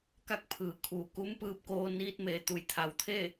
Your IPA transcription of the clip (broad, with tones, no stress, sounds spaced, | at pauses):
k a˥˨ k̚ pʰ ɯː˩ kʰ uː˩ k u˧˥ m p ɯː˧ p̚ k oː˧ n iː˧ t̚ m e˩˧ t̪ u˩ j t̪ʰ a˩˧ w t̪ʰ e˥˨